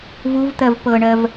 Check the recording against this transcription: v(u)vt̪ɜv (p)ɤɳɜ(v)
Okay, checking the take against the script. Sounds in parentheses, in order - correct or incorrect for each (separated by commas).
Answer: correct, correct, correct